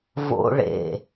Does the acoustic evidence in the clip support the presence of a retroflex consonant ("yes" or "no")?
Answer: yes